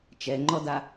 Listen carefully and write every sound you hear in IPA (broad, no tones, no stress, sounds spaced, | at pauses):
t͡ʃ ɛ ŋ͡ǃ ɔ d a